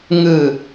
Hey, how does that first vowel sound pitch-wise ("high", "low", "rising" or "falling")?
low